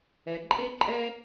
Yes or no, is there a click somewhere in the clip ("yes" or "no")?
yes